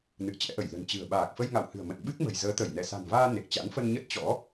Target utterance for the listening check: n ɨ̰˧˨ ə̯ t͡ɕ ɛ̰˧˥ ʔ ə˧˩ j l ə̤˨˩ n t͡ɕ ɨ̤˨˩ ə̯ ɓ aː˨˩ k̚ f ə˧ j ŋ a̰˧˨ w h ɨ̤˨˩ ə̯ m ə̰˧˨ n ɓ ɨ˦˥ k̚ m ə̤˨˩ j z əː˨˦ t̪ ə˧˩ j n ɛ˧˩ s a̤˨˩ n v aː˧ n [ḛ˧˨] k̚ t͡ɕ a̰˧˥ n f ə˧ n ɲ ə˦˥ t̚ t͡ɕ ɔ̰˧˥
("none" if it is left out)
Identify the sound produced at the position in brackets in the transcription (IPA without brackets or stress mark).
e˨˩